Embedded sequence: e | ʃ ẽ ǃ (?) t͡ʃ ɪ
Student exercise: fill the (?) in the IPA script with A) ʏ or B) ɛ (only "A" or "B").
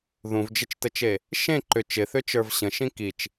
A